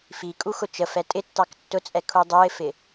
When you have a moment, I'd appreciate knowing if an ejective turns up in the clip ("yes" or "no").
yes